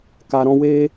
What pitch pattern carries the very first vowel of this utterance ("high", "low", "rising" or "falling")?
low